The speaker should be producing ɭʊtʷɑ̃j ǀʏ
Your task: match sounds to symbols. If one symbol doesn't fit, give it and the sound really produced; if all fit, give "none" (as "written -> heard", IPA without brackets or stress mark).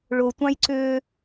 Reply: none